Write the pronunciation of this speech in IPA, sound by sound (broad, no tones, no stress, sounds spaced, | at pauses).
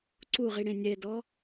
ǀ u ʁ i ɽ ẽ nʲ ɛ d ɔ